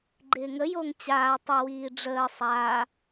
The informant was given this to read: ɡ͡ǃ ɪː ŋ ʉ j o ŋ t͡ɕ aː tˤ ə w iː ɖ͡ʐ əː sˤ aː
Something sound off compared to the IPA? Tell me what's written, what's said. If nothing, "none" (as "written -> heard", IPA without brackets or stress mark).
ʉ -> ə